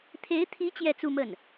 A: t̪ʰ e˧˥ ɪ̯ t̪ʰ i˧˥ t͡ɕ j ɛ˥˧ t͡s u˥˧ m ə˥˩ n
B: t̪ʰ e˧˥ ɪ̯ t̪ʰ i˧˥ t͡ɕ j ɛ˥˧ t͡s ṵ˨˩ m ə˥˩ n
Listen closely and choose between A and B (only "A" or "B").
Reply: A